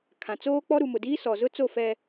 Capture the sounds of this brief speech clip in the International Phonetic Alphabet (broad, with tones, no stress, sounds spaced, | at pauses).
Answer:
kʰ ã˨ t͡s oː˦ k͡p ɔ˦ ɾ u˨ m ʊ˨ d iː˦ s ɔ˨ z ʊ˦ t͡s o˦˨ f ɛ˨